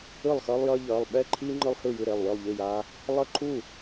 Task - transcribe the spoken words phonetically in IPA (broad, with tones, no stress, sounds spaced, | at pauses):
ɯ˥˩ lˠ x ʌː˦ lˠ j ʌː˦ ʎ ʌː˩˧˩ lˠ ɓ ɛ˥˩ ǃʰ iː˦ ŋ͡ǃ ɯ˦ lˠ h ɯ˥˩ j ɯ˥˩ ɾ e˥˩ lˠ w ɯ˥˩ lˠ ʎ i˥˩ j a˦ | lˠ ʌ˥˩ ǃʰ u˥˩